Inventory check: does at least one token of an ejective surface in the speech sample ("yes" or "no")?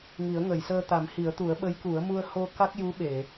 no